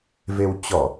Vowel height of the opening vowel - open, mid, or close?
mid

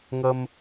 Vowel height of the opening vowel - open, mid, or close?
mid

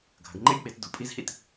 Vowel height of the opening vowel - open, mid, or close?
open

